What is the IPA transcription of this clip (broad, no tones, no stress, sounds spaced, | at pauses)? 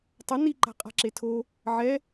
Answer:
tˤ ʌ n i ǃ a̤ qʼ a̤ ǁ e tʰ o | ʕ ɛ